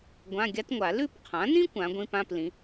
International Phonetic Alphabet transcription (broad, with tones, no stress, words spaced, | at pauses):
ɡʷã˧˥˧ɡʲa˥tŋʷa˨˩˦ lʉ˥˧pqʰã˩˥nĩ˥ kʷã˩˥ɡʷĩ˧˥˧pã˧˥˧p lĩ˩˥